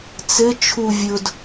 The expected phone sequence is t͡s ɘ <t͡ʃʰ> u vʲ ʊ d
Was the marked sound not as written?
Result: no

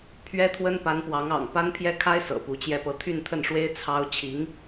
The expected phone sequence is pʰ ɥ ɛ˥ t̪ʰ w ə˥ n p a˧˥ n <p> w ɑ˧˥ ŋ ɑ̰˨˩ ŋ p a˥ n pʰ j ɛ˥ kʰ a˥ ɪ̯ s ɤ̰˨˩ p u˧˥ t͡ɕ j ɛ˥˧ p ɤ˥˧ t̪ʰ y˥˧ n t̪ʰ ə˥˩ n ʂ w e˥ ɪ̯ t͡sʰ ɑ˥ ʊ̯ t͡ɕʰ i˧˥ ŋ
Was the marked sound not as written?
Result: no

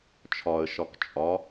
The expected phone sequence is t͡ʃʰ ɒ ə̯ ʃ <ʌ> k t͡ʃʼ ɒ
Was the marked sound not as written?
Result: yes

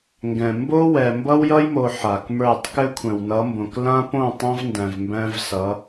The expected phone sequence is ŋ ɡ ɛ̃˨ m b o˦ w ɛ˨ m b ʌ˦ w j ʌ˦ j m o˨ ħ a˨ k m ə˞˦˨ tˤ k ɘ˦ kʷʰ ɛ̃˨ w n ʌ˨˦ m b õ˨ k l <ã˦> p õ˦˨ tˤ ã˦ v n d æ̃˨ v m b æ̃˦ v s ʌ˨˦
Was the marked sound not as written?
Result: no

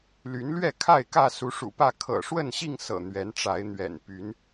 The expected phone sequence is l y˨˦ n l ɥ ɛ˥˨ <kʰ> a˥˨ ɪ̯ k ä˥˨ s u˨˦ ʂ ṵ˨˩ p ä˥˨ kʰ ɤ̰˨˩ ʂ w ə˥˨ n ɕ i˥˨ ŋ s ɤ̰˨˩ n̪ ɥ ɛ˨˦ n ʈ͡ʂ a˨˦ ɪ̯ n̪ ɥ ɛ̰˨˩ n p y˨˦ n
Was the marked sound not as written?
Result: no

